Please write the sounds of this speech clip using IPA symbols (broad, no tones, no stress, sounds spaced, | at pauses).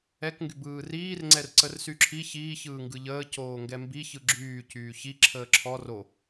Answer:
ɛ k ŋ ɡ y b ɯː r iː r ŋ͡ǀ ɛ r ǀ ə r s y ǁʰ i ç iː ç ɯː ŋ ɡ ɯ ʎ əː c oː ŋ ɡ ɛ m b i ç ɯ ɡ͡ǁ yː c yː ç i ǁʰ əː ǁʰ ɔ r o